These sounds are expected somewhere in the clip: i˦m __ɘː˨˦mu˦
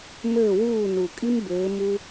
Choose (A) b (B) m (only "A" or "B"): A